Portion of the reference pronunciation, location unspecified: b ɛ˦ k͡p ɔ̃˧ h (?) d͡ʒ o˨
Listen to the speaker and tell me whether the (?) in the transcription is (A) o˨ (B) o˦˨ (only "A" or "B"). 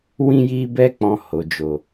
A